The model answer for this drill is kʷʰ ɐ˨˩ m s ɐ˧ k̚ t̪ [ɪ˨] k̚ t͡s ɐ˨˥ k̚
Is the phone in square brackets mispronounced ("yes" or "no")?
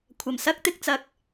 no